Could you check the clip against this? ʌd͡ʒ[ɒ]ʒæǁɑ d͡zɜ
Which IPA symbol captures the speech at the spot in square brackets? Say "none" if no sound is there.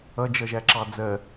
ʌ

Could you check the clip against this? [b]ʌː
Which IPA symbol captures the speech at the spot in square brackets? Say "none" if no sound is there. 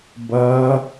b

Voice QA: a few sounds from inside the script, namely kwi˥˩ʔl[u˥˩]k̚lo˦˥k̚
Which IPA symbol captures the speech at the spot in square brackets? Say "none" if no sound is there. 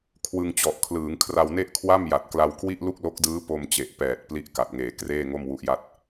u˥˩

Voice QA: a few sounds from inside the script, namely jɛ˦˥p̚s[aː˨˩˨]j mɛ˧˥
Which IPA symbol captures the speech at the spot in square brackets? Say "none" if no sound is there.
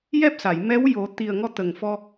a˨˩˨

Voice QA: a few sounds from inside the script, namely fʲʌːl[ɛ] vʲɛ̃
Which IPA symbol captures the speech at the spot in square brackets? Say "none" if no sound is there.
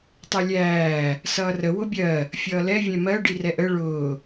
ɛ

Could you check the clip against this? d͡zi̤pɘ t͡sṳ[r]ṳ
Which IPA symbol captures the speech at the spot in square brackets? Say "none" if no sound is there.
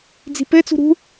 ɾ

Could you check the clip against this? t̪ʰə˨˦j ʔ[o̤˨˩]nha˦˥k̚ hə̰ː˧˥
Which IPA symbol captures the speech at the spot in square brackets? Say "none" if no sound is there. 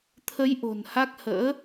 o̤˨˩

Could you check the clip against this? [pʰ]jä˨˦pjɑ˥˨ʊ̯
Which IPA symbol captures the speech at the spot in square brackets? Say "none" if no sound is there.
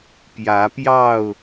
p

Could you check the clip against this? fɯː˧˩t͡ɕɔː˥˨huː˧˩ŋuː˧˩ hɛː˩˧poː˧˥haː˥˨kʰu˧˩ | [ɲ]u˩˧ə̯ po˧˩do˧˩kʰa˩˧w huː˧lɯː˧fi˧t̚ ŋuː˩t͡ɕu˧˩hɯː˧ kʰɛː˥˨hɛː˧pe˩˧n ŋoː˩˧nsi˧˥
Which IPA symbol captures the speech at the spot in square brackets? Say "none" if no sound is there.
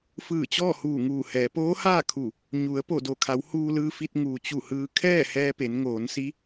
ɲ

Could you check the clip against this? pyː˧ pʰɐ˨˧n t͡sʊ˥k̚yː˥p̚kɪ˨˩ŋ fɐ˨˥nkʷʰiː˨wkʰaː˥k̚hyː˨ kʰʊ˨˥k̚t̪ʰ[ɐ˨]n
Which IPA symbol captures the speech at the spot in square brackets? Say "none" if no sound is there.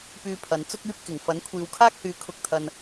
ɐ˨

